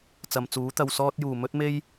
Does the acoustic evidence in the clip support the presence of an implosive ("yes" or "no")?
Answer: no